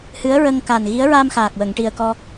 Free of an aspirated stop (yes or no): yes